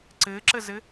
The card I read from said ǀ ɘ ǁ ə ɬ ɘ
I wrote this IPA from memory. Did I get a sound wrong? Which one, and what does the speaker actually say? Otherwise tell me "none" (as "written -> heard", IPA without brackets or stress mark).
ɬ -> z